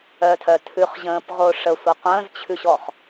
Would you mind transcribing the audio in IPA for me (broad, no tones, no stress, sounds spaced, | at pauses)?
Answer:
œ tʰ œ tʰ ʉ χ ʑ ə̃ː p ʁ o ʂ ə sʷ ʌ qʷ ə̃ː z t͡ɕʰ ʉ ɕ ɔ χ